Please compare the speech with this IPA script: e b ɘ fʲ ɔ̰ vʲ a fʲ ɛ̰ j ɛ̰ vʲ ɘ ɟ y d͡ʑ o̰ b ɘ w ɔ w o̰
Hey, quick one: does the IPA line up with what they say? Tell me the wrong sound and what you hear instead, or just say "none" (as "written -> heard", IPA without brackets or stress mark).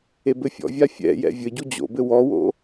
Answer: y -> u